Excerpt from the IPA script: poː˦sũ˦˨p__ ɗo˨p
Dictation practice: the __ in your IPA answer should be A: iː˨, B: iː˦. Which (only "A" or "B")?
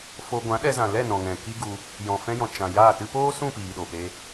A